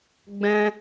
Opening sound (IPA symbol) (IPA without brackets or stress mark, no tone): ɡ͡b